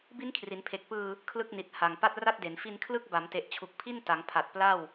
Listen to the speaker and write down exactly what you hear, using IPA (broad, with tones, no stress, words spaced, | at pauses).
bi˦˥n kʰri˩˦npʰe˨˩k̚pɯː˧ | kʰlɯ˥˩k̚ ni˨˩t̚ ha˨˩ŋ pa˥˩t̚ra˥˩t̚de˩˦n fi˧nkʰlɯ˦˥k̚ba˩˦mte˨˩ʔ t͡ɕʰu˨˩k̚pʰi˥˩n ta˩˦ŋpʰa˨˩t̚pla˥˩w